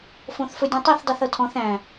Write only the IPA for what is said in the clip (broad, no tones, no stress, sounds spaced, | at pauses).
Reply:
f õ θ f ɵ dʲ õ tˤ i θ dˤ i θ ɤ tʰ ɔ̃ θ æ̃